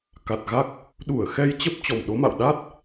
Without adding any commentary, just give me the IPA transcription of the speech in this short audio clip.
k a˨˩ t̚ ɣ a˦˥ k̚ | ɗ u˧˩ ə̯ x ɛ˧ j t͡ɕ ə˦˥ p̚ t͡ɕ ɔ˨˩ m ɗ o˨˦ m a̰˧˨ w ɗ a˦˥ t̚

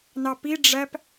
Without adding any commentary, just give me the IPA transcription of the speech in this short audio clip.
n ɑ p i ɖ͡ʐ æ p

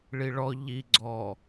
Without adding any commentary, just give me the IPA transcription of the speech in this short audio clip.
ɭ i ɭ ɔ ʎ i ɡ͡ǀ ɔ

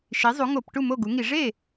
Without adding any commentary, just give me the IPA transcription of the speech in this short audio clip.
ʃ i˩˥ zˤ u˩˥ ŋ o˧˩˧ p ʈ u˥˩ m o˥˩ ɡ u˩˥ ŋ i˧˩˧ ʐ e˥˩

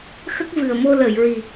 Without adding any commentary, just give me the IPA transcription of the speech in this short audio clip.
x ə˦˥ k̚ v ɨ˨˩ ə̯ m o˧ l əː˨˩˨ j ɹ i˨˩

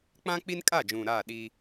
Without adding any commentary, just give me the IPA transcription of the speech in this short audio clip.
k͡p ã˦ k͡p i˦ n kʼ a˦˨ d͡ʒ ũ˨ ɾ aː˦˨ ɗ i˦

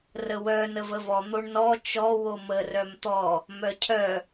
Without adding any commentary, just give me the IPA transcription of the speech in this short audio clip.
r ə w œ n ə v ə v ɔ n̪ o ɳ n ɔ t͡ʃ ɔ w o m ə r œ m t̪ ɔ | m œ cʰ œ

